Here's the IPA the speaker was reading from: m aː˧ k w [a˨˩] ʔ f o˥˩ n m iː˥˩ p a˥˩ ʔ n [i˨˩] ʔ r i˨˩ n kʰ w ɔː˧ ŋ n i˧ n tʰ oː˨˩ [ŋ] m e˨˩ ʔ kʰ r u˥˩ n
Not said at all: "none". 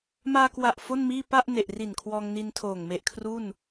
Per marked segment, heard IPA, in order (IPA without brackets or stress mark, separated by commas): a˨˩, e˨˩, ŋ